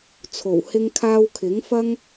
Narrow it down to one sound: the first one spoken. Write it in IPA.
t͡sʰ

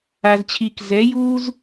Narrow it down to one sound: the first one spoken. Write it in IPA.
a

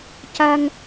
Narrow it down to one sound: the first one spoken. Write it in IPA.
c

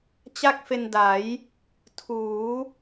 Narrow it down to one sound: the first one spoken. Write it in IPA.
t͡ɕ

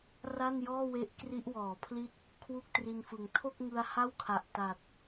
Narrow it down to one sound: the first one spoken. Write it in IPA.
r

